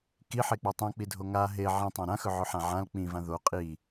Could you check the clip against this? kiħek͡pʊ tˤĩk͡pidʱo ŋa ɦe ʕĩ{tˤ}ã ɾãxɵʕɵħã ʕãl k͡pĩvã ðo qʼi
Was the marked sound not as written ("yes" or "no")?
no